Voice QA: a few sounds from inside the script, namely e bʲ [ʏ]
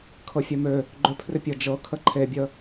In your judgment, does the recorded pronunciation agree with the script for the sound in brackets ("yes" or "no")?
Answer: no